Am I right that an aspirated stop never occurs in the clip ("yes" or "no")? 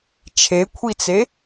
no